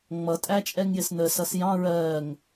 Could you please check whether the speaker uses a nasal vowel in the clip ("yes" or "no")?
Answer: yes